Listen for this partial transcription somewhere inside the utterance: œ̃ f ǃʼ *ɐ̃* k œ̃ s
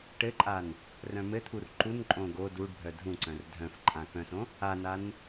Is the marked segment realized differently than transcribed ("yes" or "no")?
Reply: yes